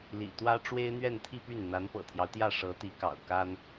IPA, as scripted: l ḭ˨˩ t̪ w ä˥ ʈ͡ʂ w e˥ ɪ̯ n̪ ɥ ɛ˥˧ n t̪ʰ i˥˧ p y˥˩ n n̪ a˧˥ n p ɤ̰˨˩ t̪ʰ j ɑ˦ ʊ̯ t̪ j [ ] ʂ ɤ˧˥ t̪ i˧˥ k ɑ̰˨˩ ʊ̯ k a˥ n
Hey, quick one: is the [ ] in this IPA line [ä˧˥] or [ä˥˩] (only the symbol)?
ä˥˩